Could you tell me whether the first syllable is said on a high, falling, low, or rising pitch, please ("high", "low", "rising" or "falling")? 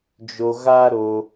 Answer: low